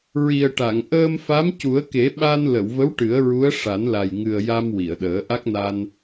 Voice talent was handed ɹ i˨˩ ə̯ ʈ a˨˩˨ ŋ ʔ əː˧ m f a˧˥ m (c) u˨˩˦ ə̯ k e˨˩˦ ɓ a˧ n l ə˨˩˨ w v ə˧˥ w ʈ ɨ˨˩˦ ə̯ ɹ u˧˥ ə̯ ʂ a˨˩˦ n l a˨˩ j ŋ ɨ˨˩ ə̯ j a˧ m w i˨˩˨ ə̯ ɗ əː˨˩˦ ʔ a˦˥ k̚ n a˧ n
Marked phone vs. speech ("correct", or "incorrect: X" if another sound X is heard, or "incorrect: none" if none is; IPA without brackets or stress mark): correct